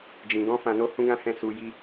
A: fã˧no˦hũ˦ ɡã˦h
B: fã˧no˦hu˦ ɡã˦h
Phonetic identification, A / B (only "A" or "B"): A